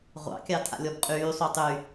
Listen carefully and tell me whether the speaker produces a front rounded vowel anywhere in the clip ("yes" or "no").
yes